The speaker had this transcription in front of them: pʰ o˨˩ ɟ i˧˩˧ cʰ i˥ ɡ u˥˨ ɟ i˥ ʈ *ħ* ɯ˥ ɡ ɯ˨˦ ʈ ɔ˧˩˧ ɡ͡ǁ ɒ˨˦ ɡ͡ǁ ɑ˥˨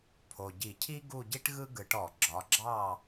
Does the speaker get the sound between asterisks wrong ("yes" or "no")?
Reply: yes